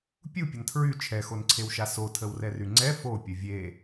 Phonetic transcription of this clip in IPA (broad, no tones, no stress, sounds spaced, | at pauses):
pʲ u pʲ ɐ n tʰ ɹ y t͡ʃʰ ɛ x o n ǀʰ e w ʃ a s o tʰ ə w r ɛ r y ŋ͡ǀ ɛ f o pʲ ə vʲ e